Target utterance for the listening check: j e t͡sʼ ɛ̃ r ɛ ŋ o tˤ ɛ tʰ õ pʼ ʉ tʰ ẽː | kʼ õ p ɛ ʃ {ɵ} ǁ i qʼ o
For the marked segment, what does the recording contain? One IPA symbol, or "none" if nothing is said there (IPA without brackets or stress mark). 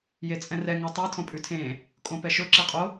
ɵ